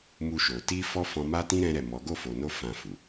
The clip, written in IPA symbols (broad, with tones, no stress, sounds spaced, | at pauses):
m u˧ ʃ o˨ t i˧ f ɔ˦ f ɔ̃˧ m a˦ t ĩ˦ ɾ ɛ̃˦ ɾ ɛ˦˨ m ɔ˨˦ ɡ o˦˨ f o˨ n o˧ f ã˨ f u˨